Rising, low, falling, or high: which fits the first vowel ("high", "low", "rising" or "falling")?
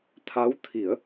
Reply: rising